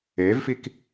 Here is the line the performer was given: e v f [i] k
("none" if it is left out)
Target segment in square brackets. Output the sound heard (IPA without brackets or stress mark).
i